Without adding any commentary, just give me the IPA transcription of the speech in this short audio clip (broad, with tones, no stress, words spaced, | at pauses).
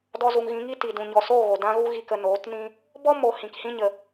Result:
dɔ˧zu˨ŋɣĩ˨˦ŋi˦ ti˨ dũ˨ɲɔ˨soː˦˨ɣo˨ dã˦ɣu˦ɣi˧kə˧ noː˨˦tnĩ˦ | bɔ˦ mo˨ hĩ˨khĩ˦ɲə˨